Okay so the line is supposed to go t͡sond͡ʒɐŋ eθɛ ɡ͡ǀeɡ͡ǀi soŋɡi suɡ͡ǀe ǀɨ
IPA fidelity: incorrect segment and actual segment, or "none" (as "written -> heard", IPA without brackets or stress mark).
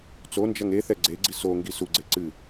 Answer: none